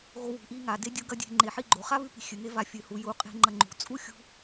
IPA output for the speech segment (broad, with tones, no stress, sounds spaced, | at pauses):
ɣ o˧ w ṳ˨ ʔ i˧ ŋ a˨ d e˦ dʲ o˦ ɡ ɐ˦ dʲ e̤˧ ŋ͡ǃ e˨ ħ i˦ ɡ͡ǃ o˨ χ a˦ β ʉ˧ p i̤˨ xʲ ɨ˨ ŋ e˦ v a˧ fʲ ɨ˨ h u˨ j u˨˦ qʼ e̤˦ ŋ͡ǃ ɐ˧ ŋ͡ǃ ṳ˨ t͡sʼ u˦ xʲ ṳ˧